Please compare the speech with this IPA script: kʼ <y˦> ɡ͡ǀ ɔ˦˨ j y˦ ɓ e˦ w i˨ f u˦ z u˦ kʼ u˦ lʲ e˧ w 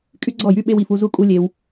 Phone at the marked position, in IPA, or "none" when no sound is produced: y˦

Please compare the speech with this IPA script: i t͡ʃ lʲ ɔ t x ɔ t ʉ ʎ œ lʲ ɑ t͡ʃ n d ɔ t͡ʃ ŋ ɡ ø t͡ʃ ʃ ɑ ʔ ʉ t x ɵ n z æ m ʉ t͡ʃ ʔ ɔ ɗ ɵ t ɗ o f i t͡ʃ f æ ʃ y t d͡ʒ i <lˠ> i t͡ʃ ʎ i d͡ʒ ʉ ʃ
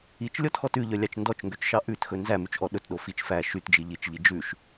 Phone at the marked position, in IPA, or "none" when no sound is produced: ʎ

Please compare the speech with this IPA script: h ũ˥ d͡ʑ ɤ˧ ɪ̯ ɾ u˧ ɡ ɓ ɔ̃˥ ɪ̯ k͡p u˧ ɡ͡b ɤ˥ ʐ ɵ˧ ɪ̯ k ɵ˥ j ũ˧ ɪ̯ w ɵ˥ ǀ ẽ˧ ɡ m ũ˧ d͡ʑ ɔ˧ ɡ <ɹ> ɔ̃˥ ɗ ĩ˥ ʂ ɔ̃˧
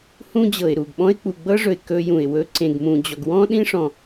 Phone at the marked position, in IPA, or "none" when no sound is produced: w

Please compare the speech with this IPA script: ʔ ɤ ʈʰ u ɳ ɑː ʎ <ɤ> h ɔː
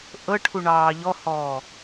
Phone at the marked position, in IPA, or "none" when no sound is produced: ɔ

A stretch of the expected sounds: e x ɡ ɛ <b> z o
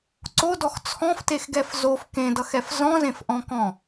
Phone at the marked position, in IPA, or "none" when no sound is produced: f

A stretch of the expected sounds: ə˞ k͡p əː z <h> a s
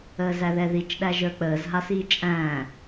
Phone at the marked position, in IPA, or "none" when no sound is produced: ɦ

